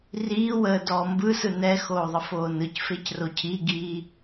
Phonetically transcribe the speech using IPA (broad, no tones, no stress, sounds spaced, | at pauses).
r iː w əː d ɔː m b ɯ s ɯ n ɛ x oː ðˤ ə f oː n ɯ c f e c r o cʰ i ɡ iː